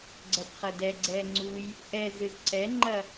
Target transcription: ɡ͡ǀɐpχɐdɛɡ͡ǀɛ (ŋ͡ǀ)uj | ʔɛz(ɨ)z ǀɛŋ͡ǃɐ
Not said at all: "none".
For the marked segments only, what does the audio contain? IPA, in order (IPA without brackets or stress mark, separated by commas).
ŋ͡ǀ, ɨ